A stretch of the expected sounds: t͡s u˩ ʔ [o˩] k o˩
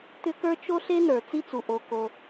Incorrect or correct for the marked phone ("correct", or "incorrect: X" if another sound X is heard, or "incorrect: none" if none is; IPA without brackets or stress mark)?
correct